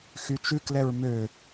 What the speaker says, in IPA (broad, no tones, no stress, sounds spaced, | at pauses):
x y t͡ʃ ʉ k l ɛ ɹ m ø